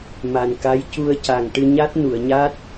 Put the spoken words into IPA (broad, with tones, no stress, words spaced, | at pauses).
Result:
ma˨˩nka˧˥j cu˧ə̯ca˨˩ŋʈɨ˧ ɲa˦˥t̚ nu˨˩˨ə̯ɲa˦˥t̚